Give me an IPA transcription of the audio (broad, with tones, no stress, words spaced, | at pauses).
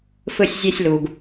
fɯ˦sʲ zʲe˦sʲlu˨ɡ